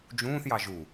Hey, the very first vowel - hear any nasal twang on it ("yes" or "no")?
yes